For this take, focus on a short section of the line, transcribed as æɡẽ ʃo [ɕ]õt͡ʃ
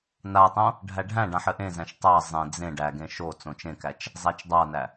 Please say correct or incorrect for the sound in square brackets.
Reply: incorrect